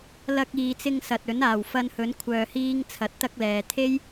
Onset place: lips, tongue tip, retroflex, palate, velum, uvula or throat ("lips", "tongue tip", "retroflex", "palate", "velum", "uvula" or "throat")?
tongue tip